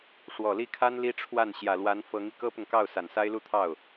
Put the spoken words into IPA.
ʂwɔ˨˩li˥˩kʰa˥n li˥ʈ͡ʂʰwa˥˩n ɕjä˨˩lwa˧˥n fɤ˧˥ŋi˧ kɤ˥pʊ˨ŋkɑ˥˩ʊ̯ sa˨˩nsa˥ɪ̯lu˥˧t̪ʰɑ˥˩ʊ̯

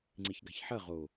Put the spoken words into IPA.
ŋ͡ǀiçɡa̤çħɐ ʁo

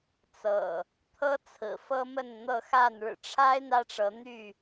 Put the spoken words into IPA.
t͡sɤ̰˨˩ | t̪ʰɤ˦ t͡sʰɹ̩˨˩fɤ˦mə˥˨n n̪ɤ˥˨xa˥˨n ɻɻ̩˨˩ʈ͡ʂʰa˦ɪ̯ n̪ä˦ʈ͡ʂɤ˨˦n̪y˥˨

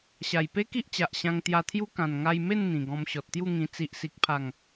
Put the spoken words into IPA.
ɕa˨˩jpe˦ki˦ʔt͡ɕa˨ʔ ɕã˧ŋt̪ja˧t̪ʰju˦ kã˨˩nŋa˧jme˥˧n n̪ĩ˨˩ɡɔ̃˧m ɕɔ˨t̚t̪ju˥˧ŋĩ˧ t͡si˨ʔsi˨k̚pʰa˨˩ŋ

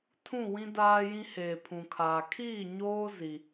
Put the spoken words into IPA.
tʰũ˦˨wĩ˦daː˦jĩ˦ heː˨pʰũ˨kʰaː˨ kʰiː˦˨ɲoː˦ zi˦

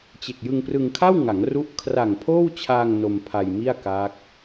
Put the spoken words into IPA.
t͡ɕe˨˩k̚jɯ˧ŋprɯ˧ŋ kʰa˥˩wŋa˩˦ŋru˦˥ʔ kʰra˨˩ŋpʰoː˥˩wt͡ɕʰaː˧ŋ no˧m pʰa˧jmi˥˩a̯ ka˦˥k̚

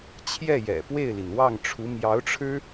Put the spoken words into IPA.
t͡ɕʰjɛ˥˩jɛ̰˨˩pwe˥˩ɪ̯li˩n wɑ˥˩ŋʈ͡ʂʰu˧˥ mjɑ˧˥ʊ̯ʈ͡ʂʰɻ̩˥

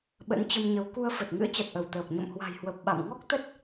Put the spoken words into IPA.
ɓə̰˧˥nt͡ɕə˧mɲə˨˦w ku˧ə̯fə˨˩t̚ ŋɨ̰˧˥ə̯t͡ɕa˨˩t̚ʔə˧˩w t̪əː˨˩p̚ ɲə̰˧˨mhwa̤˨˩jhwə˨˩p̚ ɓa̰˧˨m ŋɔ˦˥k̚t̪ə˦˥t̚

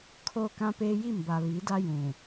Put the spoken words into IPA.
kʰoː˦kã˦peː˦ ji˦˨mba˨ βi˨˦da˦ jũ˨

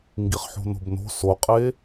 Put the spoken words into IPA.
ŋɡiχħo̤no̤bno̤ soqʼe

